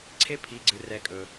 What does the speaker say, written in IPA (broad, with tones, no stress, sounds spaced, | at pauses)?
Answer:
ǀʰ e˧˥ pʰ i˩˧˩ ɡ͡ǀ ɨ˩ r ɛ˩˧ kʼ ɵ˩